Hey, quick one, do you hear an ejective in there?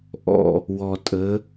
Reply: yes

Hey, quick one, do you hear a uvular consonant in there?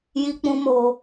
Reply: no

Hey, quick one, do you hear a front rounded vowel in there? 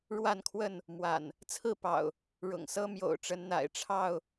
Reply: no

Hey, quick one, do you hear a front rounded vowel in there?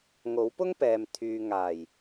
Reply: yes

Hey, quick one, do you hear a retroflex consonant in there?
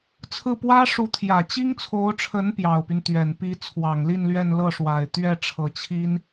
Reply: yes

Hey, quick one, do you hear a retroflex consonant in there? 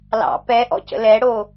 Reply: yes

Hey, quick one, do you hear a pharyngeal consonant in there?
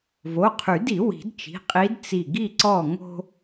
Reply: no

